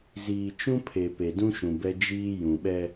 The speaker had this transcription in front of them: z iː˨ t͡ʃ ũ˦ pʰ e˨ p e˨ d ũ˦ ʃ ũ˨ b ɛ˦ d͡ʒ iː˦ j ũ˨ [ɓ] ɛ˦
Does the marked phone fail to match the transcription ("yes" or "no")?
no